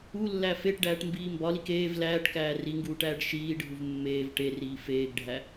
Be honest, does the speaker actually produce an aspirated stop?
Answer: no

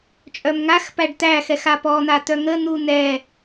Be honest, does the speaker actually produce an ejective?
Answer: yes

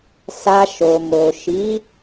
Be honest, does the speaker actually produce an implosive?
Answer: no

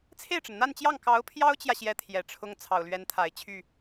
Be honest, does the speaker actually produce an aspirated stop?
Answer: yes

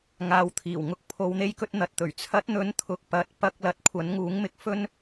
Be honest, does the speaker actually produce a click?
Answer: no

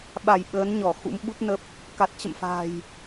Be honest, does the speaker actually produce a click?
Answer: no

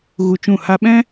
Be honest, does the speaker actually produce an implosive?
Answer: yes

